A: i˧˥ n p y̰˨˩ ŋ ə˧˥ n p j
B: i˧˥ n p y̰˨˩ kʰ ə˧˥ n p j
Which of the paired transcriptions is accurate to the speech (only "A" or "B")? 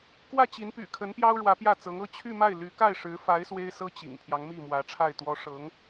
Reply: B